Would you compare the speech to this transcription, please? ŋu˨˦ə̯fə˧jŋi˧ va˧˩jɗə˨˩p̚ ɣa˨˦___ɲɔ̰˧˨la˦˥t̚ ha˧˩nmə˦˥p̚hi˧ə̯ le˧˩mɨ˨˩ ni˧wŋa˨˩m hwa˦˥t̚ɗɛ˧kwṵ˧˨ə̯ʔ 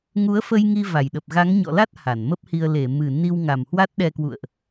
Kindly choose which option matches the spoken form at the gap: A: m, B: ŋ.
B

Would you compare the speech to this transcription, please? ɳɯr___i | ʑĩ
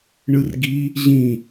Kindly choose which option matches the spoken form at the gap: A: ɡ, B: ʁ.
A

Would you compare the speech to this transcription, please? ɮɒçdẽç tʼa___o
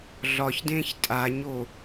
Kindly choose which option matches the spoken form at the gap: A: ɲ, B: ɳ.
A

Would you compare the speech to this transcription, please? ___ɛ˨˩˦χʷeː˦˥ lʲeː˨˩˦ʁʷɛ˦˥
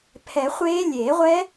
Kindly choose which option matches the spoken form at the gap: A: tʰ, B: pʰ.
B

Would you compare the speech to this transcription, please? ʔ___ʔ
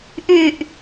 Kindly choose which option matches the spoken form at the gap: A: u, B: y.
B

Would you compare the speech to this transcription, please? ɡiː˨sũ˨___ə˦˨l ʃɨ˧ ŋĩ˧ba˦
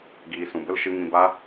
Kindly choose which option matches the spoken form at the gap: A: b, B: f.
A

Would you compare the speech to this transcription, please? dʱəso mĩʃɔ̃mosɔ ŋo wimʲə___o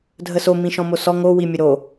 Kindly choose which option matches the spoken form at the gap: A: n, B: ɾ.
B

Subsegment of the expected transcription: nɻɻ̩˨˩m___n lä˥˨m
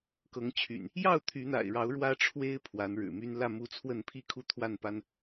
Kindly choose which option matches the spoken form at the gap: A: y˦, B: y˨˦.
A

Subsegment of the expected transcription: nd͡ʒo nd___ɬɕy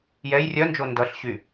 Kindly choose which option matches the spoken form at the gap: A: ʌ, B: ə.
A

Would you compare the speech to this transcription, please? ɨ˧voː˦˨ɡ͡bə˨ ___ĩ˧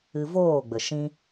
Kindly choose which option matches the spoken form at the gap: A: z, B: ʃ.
B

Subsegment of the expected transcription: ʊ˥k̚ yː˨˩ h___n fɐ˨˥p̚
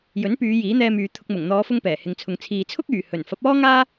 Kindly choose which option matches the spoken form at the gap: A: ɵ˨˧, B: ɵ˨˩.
B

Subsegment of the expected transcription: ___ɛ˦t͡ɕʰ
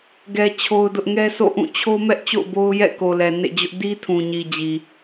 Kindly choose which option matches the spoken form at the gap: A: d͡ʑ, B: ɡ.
B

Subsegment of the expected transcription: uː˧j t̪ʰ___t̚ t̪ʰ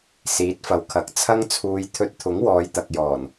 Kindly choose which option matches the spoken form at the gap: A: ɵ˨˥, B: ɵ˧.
B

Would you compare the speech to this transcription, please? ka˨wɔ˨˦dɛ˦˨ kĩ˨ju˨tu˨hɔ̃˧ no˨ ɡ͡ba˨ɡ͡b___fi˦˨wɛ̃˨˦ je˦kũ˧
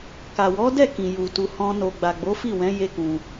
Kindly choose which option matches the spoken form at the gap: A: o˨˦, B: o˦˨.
A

